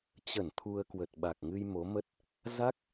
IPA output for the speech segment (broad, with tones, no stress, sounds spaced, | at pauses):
t͡ɕ ə˧˩ n t̪ʰ u˧ ə̯ k w ə˨˩ t̚ ɓ a˨˩ k̚ ŋ ɨ˧ j m o˨˦ m ə˦˥ t̚ | z a˦˥ k̚